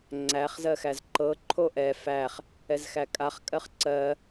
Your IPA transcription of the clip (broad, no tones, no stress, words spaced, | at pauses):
ŋ͡ǀæχ zɜxæzǃɤ ǃʰoʔɛ fæχ | ɛzxækʼaχ kʼɜχǀɜ